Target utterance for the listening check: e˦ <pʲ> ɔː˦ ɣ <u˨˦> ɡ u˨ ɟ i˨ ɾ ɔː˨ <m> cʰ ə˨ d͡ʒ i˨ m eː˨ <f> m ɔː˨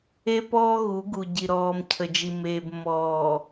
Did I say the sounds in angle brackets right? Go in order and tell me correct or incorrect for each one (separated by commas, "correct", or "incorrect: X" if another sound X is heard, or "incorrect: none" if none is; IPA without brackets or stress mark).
incorrect: p, correct, correct, incorrect: b